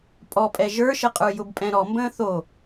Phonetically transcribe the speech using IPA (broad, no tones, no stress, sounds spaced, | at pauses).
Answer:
pʼ ɔ pʼ ɛ ʒ ə˞ ʃ ə qʼ ə˞ j ʊ b pʼ ɛ̃ ɾ ɔ m b ə̃ː θ o